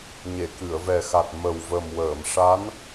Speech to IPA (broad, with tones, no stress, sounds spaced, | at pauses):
ɲ e˨˩˨ k ɨ˨˩˨ ə̯ v ɛ˨˩ x a˨˩ t̚ m ə˨˩ w v ə˨˩ m w əː˨˩˨ m ʂ a˧˥ n